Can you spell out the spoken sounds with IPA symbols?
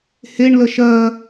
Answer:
h e ɳ l ə ʃ ɜ

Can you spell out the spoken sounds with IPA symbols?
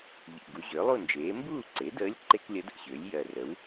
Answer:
ʎ ḭ˨˩ ɡ u˩˥ ʑ ʏː˩˥ lˠ u˥˨ n d͡ʒ eː˩˥ m b uː˥˨ ǀ e˩˥ d əː˧˥ lʲ ǃ e˥ k lʲ ə˧˥ d ə̰˥˨ ɕ ʏː˩˥ lʲ j ɜ˨˩ r ə˩˥ w

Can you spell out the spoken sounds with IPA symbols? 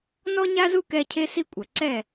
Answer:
n ɔ˦ ɲ a˦ z u˦ k ɛ˧ cʰ e˦ s i˦ kʷʼ ɐ˨ ǀ ɛ˦˨

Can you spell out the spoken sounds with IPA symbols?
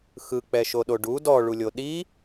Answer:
x ɯ k͡p ɛ ʃ o ɗ o ɖ u d ɔ ɭ u lʲ o ɗ i

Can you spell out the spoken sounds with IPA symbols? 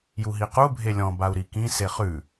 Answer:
j u ɦ i q u bʱ e lʲ ɔ̃ b a u̯ ɾ i k ĩ s e χ ʉ

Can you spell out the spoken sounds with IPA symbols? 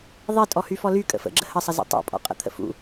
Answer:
ðˤ i tʼ ɔ h y f ɔ l y kʼ ə̰ f ə̰ ɡ͡ǁ ə h ə sˤ ə z ḭ tˤ ṵ pʼ ɔ̰ qʼ ə̰ t̪ʰ ə̰ f ṵ

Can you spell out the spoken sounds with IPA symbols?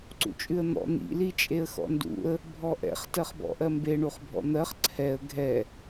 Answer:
ǀ ṵ t͡ʃʼ ʉ ə̯ n̪ ɔ̰ n̪ ḭ l i t͡ʃʼ e ə̯ x ɔ̰ n d ṵ ə̯ | bʱ ɔ ʔ ɛ̰ χ t ɜ χ b ɔ̰ ʔ ɜ m b e ɳ u χ bʱ ɔ̰ n̪ ɜ χ ǀʰ ɛ ə̯ ɡʱ ɛ

